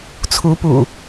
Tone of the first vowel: rising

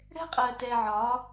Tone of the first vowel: high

